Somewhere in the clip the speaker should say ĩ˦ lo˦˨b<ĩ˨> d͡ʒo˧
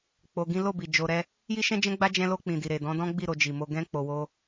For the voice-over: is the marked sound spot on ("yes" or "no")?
no